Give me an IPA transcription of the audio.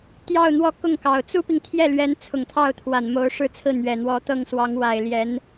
t̪ j ɑ˥˧ ʊ̯ n̪ w ɔ˥˧ k ʊ˥˩ ŋ k ɑ˨˩ ʊ̯ t͡s u˥ p i˨ ŋ t̪ʰ j ɛ˥˩ l ɥ ɛ˧˥ n t͡sʰ ʊ˨˩ ŋ t̪ʰ ɑ˥˩ ʊ̯ t̪ʰ w a˨˩ n m o˧˥ ʊ̯ ʂ ɻ̩˥˧ t͡sʰ ɹ̩˥˩ n̪ ɥ ɛ˨˩ n̪ w ɔ˧˥ t̪ ɤ˥˩ ŋ s w ɑ˧˥ ŋ w a˨˩ ɪ̯ l j ɛ˧˥ n

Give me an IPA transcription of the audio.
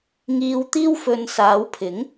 ŋ iː˧ w t̪ iː˥ w f ɵ˧ n s aː˨˧ w pʰ ɪ˨˥ ŋ

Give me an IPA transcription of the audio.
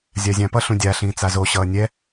zʲ a zʲ ã p ʌ ɬ ũ dʲ a ɬ ĩː t͡s a z o ɕ ʌː nʲ ɛ

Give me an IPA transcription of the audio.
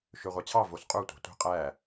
ʃ ø ʁʷ ɑ t͡ɕʰ ɑ v o s qʼ u tʷ ɑ̤ tʷ i̤ qʼ æ

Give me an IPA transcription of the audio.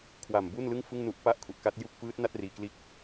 kʰ w a˨˩ m b u˥˩ n l ɯ˥˩ ŋ f ɯ˥˩ ŋ n u˦˥ ʔ p a˥˩ ʔ kʰ u˨˩ ʔ k a˦˥ t̚ j u˦˥ k̚ f ɯː˦˥ t̚ n a˥˩ t̚ r iː˨˩ k l iː˦˥ k̚

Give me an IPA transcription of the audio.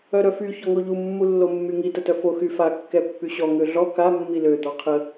œ ɾ œ f y ç ɔ ŋ o ʎ u mː u lː o mː y ŋ i t ə t œ f o x y f a kː ɛ pː y ɕ ɔ ŋ ø ɮ ɔ k a mː i l ø d̪ ɔ qʰ ə

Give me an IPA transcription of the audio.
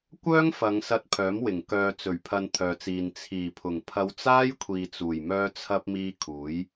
kʷ œː˥ ŋ f ɐ˨˧ ŋ s ɐ˧ t̚ pʰ œː˨˥ m w ɪ˨˩ ŋ k œː˨ t͡s ɵ˨˩ ɥ pʰ ɐ˨ n t̪ʰ œː˨ t͡s iː˨ n t͡sʰ iː˨˩ pʰ ʊ˨˩ ŋ pʰ ɐ˧ w t͡s aː˥ j kʷʰ iː˨ t͡s uː˨˩ j m œː˧ t͡sʰ ɐ˧ p̚ m iː˧ kʰ uː˨˥ j

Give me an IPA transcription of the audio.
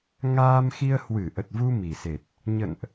ŋ aː˧ m x i˧ ə̯ h w ɨ˧˩ ʔ ə˨˩ t̚ v u˧ m i˨˩ s e˨˩ t̚ | ɲ ə̰˧˨ n ʔ

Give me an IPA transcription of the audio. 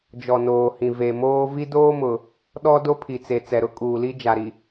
d͡ʒ ɔ˨ n oː˨ h ĩ˨ v e˨ m oː˦ v i˦ d oː˦ m ʊ˨ | ɗ ɔ˦ d o˦ pʰ i˨ t͡s e˨ t͡s ɛ˨ ɾ ʊ˦ kʼ uː˨ l i˦ d͡ʒ a˨ ɾ i˨

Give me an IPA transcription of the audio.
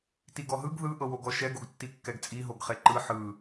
t i ɡ ɔ ɦ ɯ ɡ ð ɯ ʔ ɤ w o ɡ ɔ ʃ ɛ ɡ o ɡ tː i kː ɛ ɡ t͡sʼ i ɦ o ɡ χ e ǃ ɯ ħ ɯ

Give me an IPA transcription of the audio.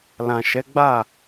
l ã˨ ʃ ɛ˨˦ ɡ͡b a˦˨

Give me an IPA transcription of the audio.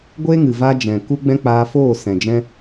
ɡʷ e˦ ŋ ɨ˨ v a˧ d͡ʒ ɛ̃˨ k u˦ ɡ͡b ɛ̃˦ k͡p aː˧ f oː˦˨ s ɛ̃˨ d͡ʒ ɛ̃˦

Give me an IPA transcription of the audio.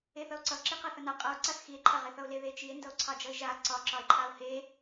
e θ ʌ o̯ ǀ ʌ ǁ i q a θ ʌ n a qʼ ʌ o̯ ǀ a θ x i e̯ ǃʰ a ʁ e θ ʌ o̯ l e ð e t͡ʃ i e̯ n d ʌ o̯ ǀʰ ɑ d͡ʒ ʌ e̯ ʒ a ǀ ɒ ǁ ɒ e̯ ǃʰ a o̯ h e

